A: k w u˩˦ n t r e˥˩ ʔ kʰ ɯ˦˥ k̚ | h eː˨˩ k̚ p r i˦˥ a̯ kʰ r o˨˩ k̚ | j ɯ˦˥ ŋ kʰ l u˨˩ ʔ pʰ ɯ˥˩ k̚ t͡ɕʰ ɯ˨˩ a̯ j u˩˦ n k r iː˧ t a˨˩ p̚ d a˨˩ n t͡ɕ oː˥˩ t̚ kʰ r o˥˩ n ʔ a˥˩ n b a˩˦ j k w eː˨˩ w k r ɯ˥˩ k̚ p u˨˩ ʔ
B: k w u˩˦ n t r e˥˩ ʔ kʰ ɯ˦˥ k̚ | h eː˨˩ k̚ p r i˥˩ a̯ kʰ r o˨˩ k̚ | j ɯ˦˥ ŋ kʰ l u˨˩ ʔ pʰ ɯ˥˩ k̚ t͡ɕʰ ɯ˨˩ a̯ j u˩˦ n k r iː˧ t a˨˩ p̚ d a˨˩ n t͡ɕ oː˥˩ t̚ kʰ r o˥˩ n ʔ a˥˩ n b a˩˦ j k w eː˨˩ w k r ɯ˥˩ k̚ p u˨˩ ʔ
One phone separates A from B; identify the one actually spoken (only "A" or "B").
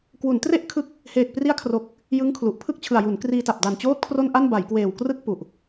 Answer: A